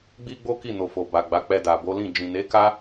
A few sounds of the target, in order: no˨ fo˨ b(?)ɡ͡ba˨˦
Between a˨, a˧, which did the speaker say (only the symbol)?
a˨